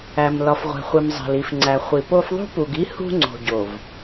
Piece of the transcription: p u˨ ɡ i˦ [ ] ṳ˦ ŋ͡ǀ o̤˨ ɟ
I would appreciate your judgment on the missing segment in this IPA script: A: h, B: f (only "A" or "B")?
A